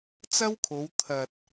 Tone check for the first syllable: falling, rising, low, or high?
high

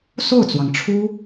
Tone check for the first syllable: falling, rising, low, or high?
falling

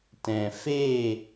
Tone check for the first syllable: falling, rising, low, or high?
low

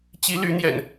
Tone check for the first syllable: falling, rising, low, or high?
rising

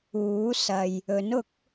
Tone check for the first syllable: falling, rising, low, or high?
rising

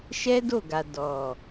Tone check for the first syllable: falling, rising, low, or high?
high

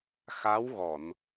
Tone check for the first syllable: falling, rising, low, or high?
rising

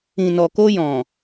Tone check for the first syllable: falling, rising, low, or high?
low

